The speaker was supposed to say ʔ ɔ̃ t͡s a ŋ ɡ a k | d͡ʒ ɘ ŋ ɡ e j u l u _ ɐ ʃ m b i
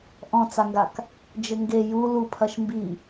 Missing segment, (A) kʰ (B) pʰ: B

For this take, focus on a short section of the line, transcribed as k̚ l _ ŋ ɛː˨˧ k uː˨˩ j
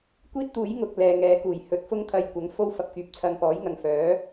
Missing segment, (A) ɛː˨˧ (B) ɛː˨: B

